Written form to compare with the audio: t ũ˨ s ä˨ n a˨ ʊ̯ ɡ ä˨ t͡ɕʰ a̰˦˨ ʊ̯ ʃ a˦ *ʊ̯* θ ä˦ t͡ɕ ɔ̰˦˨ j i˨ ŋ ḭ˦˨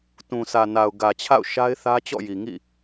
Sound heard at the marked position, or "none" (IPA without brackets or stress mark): ɪ̯